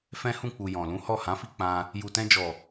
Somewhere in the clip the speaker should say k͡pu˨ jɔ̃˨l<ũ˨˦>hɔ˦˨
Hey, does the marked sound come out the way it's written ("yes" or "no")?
yes